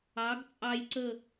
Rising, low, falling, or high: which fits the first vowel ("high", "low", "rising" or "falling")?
rising